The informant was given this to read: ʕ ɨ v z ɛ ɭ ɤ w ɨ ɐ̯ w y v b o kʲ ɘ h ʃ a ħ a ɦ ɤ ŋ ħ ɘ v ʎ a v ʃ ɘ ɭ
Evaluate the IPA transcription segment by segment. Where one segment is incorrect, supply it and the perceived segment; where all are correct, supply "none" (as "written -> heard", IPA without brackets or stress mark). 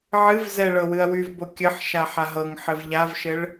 h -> ħ